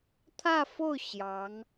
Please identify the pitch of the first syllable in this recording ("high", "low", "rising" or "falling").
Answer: falling